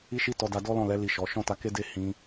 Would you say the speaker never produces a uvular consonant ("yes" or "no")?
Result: yes